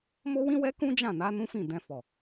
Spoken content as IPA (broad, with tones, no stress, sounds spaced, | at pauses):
m o˦ w ĩ˦ w ɛ˦ k ũ˦ d͡ʒ ã˦˨ n a˨˦ n ũ˦ f ĩ˦˨ d ɛ̃˧ f ɔ˨